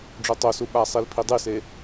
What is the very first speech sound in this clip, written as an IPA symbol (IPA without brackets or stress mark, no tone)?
ɖ͡ʐ